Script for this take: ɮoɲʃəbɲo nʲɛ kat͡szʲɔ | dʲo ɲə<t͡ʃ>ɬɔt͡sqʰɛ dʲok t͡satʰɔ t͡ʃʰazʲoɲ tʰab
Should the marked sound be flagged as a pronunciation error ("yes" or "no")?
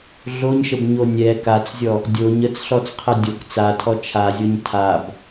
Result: yes